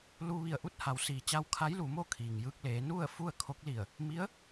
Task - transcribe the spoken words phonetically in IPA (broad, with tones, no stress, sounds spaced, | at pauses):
l u˧ ʋ i˧˩ ə̯ ʔ u˥˨ t̚ h a˩˧ w s iː˩ t͡ɕ a˧ w kʰ a˧˥ j l u˩˧ m o˥˨ kʰ iː˩ ŋ j ɯː˧ k̚ l eː˩˧ n u˥˨ ə̯ f u˥˨ ə̯ kʰ o˧˥ k̚ l i˧˩ ə̯ | m i˧˥ ə̯